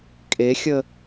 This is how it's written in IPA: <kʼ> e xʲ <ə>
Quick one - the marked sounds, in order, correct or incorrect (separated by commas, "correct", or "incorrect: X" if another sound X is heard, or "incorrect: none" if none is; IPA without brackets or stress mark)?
correct, correct